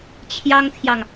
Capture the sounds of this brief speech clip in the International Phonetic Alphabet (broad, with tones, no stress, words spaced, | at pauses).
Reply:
t͡ɕʰjɑ˥ŋt̪ʰjɑ˨ŋ